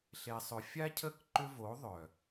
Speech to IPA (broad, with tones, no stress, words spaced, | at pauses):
ɬe˨sˤʏ˨fʲa˦cʰə˦˨k ǃʏ˧vo˨˦ ðˤœ˨